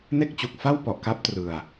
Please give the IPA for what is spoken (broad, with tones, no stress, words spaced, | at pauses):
ne˥˩k̚t͡ɕu˨˩k̚fa˥˩wpɔ˨˩ʔ ka˦˥p̚trɯ˨˩a̯